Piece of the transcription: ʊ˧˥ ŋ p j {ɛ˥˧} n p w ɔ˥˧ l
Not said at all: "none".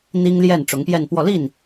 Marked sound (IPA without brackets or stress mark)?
ɛ˥˧